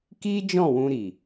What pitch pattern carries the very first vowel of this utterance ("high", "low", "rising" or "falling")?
high